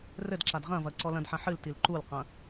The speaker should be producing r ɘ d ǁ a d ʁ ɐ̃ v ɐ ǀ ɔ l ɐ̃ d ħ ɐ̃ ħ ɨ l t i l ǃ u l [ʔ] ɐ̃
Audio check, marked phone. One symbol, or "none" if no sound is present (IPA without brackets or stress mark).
q